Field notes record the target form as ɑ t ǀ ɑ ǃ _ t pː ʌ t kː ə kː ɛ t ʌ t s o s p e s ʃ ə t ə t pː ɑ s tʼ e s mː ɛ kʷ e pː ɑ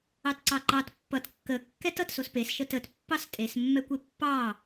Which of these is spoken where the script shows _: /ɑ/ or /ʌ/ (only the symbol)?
ɑ